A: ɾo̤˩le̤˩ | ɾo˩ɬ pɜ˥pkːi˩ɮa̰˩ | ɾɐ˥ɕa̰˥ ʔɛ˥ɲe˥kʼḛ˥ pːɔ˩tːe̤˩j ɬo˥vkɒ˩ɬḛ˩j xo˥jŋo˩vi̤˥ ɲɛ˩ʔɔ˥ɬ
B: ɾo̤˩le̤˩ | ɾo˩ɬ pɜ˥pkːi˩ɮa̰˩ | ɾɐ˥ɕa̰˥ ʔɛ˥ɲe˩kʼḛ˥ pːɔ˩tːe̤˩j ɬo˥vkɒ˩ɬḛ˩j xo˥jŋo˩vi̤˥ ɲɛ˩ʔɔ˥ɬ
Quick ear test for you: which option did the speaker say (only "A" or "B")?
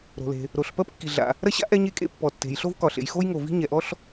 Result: A